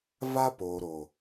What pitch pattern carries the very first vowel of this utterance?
high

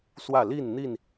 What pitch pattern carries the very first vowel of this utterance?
falling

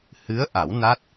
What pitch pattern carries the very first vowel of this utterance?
rising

